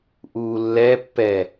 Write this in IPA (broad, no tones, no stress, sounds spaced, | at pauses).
ʔ uː lː ɛ pː ɛ